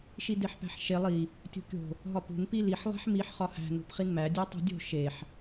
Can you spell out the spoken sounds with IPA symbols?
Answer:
ʃ i d e ħ p æ̤ ħ ʃ e lˠ i | tʲ o̤ kʲ o̤ | ɦ ɒ p ṳ n p i l i ħ lˠ æ̤ ħ m i ħ χ ɒ h æ̤ n o̤ p χ i n m æ dʲ æ tˤ ṳ dʲ o̤ ʃ e ħ

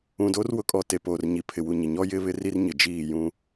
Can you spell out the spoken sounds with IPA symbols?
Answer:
ũ˨ d o˦ r w ʊ˦ kʼ ɔ˦˨ t e˨ p oː˨ r ɲ i˨ pʰ ɪ˨ w u˨ ɲ ɪ˨ ɲ ɔ˦ j ɪ˦ β ɪ˦ r i˦ r ɲ ɪ˨ d͡ʒ iː˦˨ j ũ˦

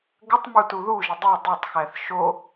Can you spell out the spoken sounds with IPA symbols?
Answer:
ɡ ə tˤ m u t u ð u ʒ ə dˤ e dˤ e tˤ x æ θ ʃ o

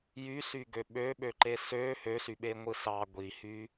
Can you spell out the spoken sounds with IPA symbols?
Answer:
j y s y ɡ ø ɓ ø ɓ ø ǃ e s ø h ø s y ɓ e ŋʷ ɯ s ɑ ɡʷ i h y

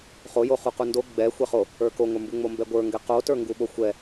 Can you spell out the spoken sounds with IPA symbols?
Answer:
χ o j o χ u q u n d o ɡ͡b ɛ xʷ ɛ χ o | ə˞ k o ŋʷ ə˞ m b u ŋ͡m o m b ɛ ɡʷ ə˞ ŋ ɡ ɛ q o t ə˞ ŋ ɡ u ɓ o xʷ ɛ

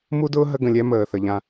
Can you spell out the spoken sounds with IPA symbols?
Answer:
m u˦ d ʊː˦ ɦ ə˦ ɡ ə̃˨ lʲ ɛ˦ m əː˨ θ ə˨ ʎ ã˧

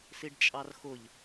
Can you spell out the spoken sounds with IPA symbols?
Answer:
s i ɖ t͡ʃʼ ɑ r x ʊ ʎ

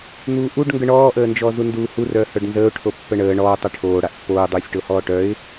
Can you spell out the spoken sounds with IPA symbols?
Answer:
n̪ uː ʔ u ɖ ŋ ɡ ə ɳ ɔː ʔ əː n d͡ʒ ɔː z u n d uː h u r œː h œ ɖ n z əː ʊ̯ ʈʰ o pː ə ɳ əː ɳ ɔː tˤ e ʈʰ oː ɽ a ʔ pː oː dˤ uː sʲ ʈ o h ɔː ʈ œ ɪ̯

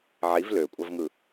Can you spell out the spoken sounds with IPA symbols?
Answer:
ʕ i v l ø kʷʼ ɑ v ŋ ɯ

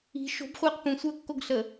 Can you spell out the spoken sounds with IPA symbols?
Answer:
i̤ ʃ o̤ b χʷ eː q p ũ sʷ əː kː o ɡ ɬ ə

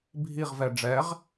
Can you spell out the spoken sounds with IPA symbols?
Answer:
bʱ i ʁ v ɛ ɖ͡ʐ ɛ ʁ

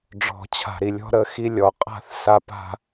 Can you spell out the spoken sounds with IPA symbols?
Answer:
ɖ͡ʐ ɔ̤˨ t͡ɕʰ a̤˨ ɾ i˨ lʲ ɔ̤˦ ɾ ə˦ x i˦ lʲ ɔ˨ qʼ a̤˦ θ s a˦ p a̤˦

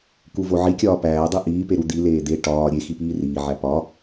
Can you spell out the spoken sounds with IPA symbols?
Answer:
k u v o ʕ i kʲ ɒː p æː dˤ i ʔ iː p e ɾ u d̪ i l eː d̪ e ʈ ɒː ɾʲ e x i p iː r iː ʕ æ p ɒ

